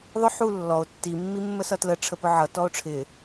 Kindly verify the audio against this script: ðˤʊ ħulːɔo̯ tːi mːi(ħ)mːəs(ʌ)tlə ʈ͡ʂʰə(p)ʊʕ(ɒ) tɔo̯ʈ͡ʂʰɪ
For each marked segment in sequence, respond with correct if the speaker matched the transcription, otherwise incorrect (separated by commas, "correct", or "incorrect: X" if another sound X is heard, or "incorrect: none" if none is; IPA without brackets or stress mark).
incorrect: none, correct, correct, incorrect: ʌ